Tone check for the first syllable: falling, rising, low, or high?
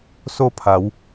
falling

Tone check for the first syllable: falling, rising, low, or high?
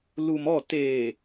low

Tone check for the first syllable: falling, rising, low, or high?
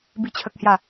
falling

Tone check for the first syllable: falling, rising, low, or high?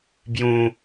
low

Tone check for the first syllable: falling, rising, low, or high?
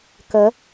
rising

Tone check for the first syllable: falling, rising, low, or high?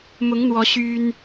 rising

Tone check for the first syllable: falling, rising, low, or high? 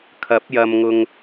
rising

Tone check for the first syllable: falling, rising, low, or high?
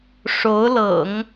rising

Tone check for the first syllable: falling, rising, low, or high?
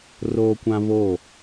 high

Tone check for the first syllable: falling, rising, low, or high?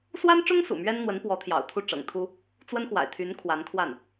high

